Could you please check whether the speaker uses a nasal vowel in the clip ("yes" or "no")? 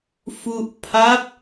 no